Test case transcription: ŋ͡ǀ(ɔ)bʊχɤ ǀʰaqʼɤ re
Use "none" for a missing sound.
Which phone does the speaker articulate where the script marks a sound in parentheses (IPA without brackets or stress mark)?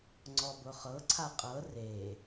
ɔ